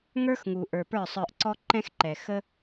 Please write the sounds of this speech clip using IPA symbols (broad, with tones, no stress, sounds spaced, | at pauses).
ŋ ə˞˦ x ŋ u˨ ʔ ə˞˨ p ə˞˦˨ sˤ ə˞˧ ʔ ǀ ɔ˦ ǃ ɛ̃˦ x ǃ ɛ˨ x ə˦